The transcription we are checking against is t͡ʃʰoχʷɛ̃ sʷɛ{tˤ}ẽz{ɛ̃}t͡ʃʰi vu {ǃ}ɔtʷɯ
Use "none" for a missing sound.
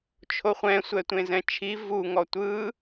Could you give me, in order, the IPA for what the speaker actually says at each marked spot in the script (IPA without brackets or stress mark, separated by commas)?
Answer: tʷ, ɛ̃, ŋ